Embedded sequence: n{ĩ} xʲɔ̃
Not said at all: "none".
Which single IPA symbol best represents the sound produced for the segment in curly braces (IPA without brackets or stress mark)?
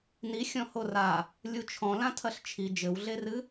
i